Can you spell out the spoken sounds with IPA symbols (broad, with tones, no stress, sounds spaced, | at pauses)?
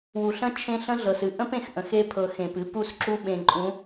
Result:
w u˨ ɬ ə̃˦ t͡ʃʰ ẽ˦ ɬ ə̃˦ ɮ ɤ˨ s ɨ˨ ʔ ə̃˦ p ẽ˨ x ʔ ə̃˨ x e˦ pʰ ɤ˨ x ẽ˨ p ɨ˦ p u˦˨ s ǁ u˦ ɓ ẽ˨ ǃʼ ũ˨˦